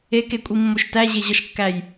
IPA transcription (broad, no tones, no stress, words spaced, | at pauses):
ekekʷʼimːoʃ tæʑeʑɒʃkːæj